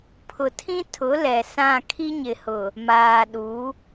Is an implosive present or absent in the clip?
present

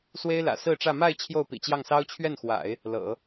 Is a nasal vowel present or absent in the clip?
absent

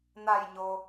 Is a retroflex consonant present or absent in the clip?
absent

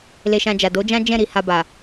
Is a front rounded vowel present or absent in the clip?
absent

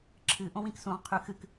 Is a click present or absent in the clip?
present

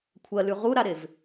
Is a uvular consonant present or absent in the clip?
present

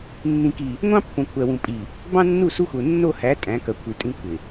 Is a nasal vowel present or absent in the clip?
present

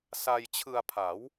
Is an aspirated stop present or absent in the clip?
present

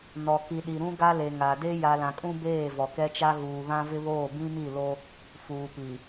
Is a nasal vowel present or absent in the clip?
present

